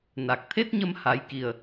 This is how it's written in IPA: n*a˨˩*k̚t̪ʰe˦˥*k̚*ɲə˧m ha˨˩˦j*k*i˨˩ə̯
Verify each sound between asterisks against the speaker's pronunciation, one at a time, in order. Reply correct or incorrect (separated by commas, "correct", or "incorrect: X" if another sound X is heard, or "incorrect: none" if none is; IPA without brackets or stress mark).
correct, incorrect: t̚, correct